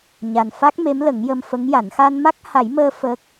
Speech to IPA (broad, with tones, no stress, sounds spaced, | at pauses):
ɲ a˨˩ n f a˦˥ k̚ m e˧˥ m l ə˨˩˦ ŋ j ə˧ m f ə˧˥ ŋ j a˨˩˦ n x a˧ n m a˦˥ k̚ h a˨˩˦ j m əː˧ f əː˦˥ k̚